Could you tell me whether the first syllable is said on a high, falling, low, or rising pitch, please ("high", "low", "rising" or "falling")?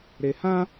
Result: low